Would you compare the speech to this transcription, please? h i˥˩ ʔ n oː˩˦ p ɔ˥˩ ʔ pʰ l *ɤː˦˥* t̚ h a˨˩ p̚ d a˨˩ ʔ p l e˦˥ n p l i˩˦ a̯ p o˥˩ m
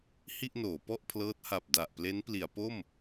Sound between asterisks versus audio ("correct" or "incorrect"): correct